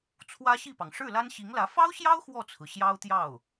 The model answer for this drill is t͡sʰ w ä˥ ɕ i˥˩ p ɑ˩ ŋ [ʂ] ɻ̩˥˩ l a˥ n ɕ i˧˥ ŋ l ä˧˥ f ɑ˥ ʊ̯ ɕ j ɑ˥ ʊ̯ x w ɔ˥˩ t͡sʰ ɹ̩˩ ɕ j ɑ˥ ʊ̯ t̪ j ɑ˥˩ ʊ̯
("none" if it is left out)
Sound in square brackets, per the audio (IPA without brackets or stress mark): ʂ